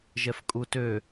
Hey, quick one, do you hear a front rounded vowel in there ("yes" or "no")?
yes